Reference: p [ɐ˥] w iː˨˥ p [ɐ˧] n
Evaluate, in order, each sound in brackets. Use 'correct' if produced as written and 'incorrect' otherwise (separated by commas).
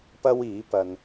correct, correct